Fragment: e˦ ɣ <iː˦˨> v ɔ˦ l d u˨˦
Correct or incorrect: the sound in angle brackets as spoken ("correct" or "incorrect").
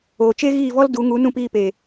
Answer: correct